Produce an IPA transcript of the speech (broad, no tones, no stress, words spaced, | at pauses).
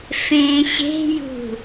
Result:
fẽ ɕe̤jṳ